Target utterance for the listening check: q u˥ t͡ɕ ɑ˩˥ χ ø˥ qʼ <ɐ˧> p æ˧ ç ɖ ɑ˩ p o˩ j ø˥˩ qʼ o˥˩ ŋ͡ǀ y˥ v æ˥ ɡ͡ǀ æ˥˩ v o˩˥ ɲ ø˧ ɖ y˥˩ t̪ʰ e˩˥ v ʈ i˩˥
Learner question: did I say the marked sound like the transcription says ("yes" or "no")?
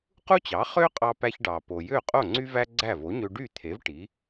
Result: no